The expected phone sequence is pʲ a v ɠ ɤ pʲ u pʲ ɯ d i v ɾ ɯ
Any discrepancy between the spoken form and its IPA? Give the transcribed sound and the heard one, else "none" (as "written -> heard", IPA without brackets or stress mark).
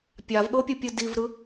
none